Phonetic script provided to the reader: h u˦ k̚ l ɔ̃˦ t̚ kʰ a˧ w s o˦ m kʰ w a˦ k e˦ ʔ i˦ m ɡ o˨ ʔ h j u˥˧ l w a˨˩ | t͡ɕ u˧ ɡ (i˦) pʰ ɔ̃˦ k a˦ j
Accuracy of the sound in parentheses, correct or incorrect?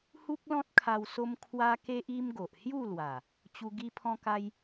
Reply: correct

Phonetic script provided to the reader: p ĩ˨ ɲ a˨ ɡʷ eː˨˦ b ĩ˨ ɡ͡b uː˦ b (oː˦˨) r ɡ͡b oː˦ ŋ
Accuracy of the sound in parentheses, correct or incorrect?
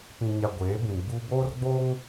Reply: incorrect: oː˦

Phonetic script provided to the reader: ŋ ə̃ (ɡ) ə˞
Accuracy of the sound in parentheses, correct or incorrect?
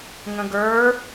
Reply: correct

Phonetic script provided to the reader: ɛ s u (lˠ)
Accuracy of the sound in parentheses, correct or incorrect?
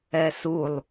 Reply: correct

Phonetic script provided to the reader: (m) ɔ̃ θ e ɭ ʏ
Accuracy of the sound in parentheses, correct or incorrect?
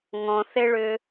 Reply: incorrect: ŋ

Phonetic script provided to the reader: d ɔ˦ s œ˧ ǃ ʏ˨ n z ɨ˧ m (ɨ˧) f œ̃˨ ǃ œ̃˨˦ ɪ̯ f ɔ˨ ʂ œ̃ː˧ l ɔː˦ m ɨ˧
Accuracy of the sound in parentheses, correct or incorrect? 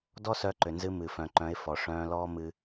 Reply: incorrect: ɨ˨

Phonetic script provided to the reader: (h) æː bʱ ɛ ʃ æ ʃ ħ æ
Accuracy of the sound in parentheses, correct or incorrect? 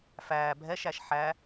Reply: incorrect: f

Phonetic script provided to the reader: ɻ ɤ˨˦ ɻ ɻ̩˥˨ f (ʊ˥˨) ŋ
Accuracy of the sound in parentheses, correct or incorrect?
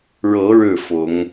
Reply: incorrect: ʊ˨˦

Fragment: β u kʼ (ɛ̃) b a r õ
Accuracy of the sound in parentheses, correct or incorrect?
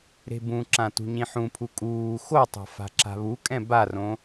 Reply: correct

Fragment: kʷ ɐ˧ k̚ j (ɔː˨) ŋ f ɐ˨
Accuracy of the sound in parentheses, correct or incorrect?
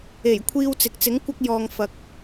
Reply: correct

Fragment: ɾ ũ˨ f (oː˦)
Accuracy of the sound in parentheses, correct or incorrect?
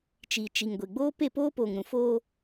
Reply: correct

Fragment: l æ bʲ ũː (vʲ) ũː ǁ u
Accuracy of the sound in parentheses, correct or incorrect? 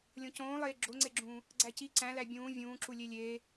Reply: correct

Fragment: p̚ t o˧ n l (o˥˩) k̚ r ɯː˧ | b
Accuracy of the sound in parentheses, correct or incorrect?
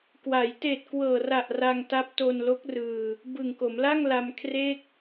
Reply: incorrect: o˦˥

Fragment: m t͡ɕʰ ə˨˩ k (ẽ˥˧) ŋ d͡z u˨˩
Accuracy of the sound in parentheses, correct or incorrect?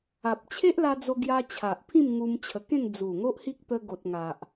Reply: correct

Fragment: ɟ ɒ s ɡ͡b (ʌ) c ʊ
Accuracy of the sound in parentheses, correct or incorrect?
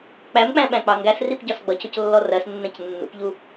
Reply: correct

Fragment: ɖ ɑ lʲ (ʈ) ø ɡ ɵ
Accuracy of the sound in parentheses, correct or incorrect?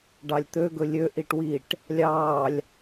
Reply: incorrect: t̪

